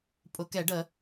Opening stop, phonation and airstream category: ejective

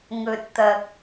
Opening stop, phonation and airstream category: plain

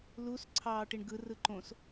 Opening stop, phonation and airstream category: click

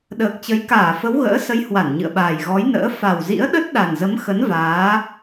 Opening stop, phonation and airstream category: implosive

